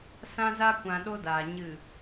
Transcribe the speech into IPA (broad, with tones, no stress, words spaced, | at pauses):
sã˧za˧kʷã˨ ɗo˦daː˨ ɲɨ˦˨